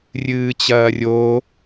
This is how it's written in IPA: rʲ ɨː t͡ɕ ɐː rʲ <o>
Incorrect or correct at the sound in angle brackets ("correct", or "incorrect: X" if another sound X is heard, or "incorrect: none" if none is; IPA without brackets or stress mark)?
correct